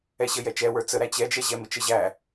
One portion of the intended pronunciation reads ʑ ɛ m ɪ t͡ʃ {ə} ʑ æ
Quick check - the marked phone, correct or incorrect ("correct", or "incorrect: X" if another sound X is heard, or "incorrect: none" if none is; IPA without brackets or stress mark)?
correct